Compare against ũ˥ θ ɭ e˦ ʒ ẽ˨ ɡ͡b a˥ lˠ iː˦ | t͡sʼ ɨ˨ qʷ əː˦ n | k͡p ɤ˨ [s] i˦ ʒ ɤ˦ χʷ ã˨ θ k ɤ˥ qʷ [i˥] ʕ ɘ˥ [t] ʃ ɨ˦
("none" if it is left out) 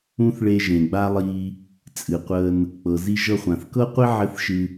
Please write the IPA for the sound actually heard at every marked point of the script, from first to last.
z, i˥, θ

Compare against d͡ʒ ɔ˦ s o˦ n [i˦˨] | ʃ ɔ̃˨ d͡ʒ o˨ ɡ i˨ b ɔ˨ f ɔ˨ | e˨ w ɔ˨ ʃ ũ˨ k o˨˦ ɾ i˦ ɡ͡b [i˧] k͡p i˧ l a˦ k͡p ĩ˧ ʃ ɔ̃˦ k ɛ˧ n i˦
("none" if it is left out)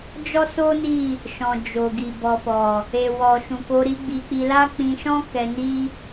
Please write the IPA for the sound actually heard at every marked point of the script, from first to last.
i˦˨, i˧

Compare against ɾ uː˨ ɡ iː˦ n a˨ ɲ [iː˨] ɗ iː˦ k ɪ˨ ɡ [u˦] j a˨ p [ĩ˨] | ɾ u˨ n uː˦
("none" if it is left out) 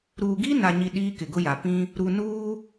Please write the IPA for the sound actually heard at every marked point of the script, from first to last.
i˨, ʊ˦, ĩ˦

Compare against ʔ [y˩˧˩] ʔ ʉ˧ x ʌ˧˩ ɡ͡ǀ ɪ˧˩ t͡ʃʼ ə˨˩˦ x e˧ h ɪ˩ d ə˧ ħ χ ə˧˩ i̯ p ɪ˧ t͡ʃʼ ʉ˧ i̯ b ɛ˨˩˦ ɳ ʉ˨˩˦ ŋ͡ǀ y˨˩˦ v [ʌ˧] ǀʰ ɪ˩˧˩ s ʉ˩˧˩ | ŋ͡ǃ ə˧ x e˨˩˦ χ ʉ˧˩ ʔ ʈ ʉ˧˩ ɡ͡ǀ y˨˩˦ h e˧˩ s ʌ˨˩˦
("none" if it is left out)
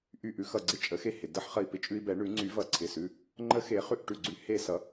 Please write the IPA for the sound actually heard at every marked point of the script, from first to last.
y˧˩, ʌ˨˩˦

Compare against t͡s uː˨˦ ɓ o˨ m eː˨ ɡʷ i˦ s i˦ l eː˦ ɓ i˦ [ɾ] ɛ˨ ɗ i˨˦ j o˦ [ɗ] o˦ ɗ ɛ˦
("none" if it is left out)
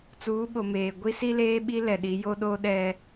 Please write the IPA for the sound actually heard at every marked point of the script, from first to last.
l, ɗ

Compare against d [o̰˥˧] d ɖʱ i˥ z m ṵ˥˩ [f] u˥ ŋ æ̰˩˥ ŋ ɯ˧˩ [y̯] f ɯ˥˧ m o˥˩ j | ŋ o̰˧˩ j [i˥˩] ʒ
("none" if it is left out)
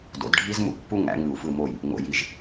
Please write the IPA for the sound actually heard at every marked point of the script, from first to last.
o̰˩˥, pː, u̯, i˧˩

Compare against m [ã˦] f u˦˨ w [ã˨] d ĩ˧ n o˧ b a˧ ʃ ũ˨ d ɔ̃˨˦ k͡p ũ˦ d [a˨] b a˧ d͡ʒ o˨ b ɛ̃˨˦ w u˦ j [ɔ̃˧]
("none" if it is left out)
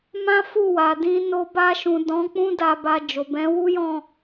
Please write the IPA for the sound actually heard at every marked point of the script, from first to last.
ã˦, a˨, a˧, ɔ̃˦˨

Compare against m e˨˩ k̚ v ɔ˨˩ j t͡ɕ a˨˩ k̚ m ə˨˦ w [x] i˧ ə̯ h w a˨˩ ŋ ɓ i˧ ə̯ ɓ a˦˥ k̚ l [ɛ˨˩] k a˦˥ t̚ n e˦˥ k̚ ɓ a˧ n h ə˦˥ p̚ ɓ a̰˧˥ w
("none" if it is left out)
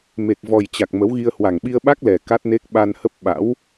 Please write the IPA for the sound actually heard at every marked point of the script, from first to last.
ɣ, ɛ˨˩

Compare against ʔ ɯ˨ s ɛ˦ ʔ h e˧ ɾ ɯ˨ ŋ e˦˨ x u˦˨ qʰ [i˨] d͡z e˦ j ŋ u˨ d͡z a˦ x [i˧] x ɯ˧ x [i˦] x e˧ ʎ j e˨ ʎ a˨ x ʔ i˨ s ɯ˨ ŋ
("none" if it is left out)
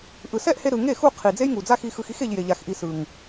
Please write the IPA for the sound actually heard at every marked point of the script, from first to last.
i˨, i˧, i˦

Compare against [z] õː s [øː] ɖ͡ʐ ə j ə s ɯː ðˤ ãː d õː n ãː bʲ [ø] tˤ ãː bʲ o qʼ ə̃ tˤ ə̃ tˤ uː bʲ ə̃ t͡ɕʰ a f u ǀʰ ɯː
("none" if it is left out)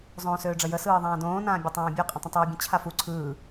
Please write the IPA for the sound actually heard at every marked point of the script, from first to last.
zˤ, øː, ø

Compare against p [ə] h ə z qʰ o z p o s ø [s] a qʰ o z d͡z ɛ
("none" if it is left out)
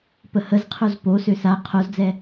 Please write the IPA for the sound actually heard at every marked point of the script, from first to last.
ə, s

